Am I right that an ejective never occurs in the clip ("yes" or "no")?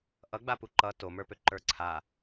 yes